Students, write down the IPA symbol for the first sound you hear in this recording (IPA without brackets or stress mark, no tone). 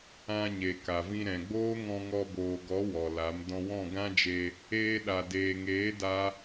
ã